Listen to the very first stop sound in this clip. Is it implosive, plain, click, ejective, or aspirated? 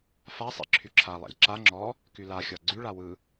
click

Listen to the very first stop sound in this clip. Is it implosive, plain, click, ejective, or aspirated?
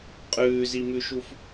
ejective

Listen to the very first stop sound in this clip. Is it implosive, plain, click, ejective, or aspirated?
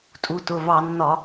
ejective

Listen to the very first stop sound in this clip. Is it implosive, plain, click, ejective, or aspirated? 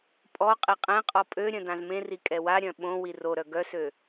ejective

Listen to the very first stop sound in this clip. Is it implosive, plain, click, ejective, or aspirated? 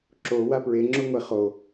click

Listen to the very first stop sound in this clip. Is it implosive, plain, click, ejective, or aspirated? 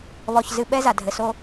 implosive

